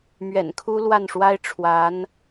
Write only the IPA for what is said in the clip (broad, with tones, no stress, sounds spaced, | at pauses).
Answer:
m ɥ ɛ̰˨˩ n kʰ u˥ l w a˥˩ n ʂ w a˥ ɪ̯ ʈ͡ʂʰ w a˧˥ n